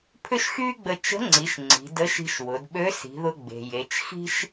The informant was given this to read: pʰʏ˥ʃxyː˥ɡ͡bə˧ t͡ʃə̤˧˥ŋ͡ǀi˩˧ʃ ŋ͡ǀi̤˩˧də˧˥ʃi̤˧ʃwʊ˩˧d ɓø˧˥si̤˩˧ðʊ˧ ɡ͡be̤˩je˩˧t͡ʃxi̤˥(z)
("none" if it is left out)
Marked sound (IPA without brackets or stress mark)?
ʃ